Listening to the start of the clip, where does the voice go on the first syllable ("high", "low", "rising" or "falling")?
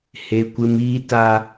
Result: high